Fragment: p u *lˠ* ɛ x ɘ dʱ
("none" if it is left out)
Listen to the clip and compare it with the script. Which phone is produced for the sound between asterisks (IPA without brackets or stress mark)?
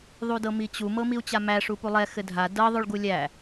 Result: lˠ